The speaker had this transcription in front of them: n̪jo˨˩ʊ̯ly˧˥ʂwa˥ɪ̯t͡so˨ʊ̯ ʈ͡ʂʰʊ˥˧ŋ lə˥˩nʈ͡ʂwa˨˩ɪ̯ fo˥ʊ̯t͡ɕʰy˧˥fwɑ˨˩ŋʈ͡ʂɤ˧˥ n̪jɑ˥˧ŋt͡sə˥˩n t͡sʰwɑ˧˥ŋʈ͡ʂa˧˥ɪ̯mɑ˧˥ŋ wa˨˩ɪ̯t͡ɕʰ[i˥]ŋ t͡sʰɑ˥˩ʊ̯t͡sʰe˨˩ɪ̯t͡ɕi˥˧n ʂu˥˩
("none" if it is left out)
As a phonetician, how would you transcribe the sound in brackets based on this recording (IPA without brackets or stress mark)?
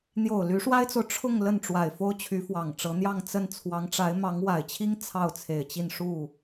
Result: i˥